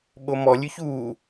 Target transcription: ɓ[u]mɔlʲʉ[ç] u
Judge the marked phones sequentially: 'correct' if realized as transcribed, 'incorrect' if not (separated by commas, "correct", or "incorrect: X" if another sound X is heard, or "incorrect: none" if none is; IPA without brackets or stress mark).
incorrect: o, correct